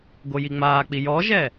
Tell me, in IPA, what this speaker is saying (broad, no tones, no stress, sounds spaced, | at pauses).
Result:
ɡ o j i ŋ͡m aː k͡p i j ɔ ʒ ɛ